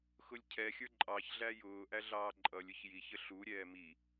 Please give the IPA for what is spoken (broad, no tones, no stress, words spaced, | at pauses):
xʊlʲcʰɛxʲə˞ ǃʼɑçɮæ jʊːʔæ ɮɑːǃʼʌlʲʊç jiçə ɬuɾʲɛː mi